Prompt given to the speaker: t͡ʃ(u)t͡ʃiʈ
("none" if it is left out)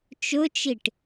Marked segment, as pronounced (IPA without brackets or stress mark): ʊ